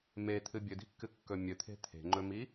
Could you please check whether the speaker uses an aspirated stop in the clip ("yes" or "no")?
yes